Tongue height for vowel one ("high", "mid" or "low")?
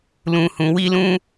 high